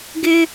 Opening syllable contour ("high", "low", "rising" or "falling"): high